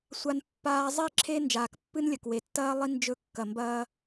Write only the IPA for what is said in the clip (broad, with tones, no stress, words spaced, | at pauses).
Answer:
sʷa˦npːaː˦ zˤi˦˨ǁʰe˦ nd͡ʒaː˨kpːɨ˦nlʲɐ˨k we˨tːɐː˦ lˠi˦ nd͡ʒɵ˦˨ kːɐ˨mbɐː˦